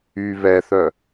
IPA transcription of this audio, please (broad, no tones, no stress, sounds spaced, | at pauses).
y β ɛ θ œ